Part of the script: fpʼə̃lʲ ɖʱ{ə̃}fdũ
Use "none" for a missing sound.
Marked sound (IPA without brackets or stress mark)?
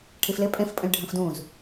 ə̃